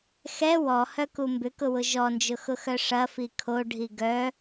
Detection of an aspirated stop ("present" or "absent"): present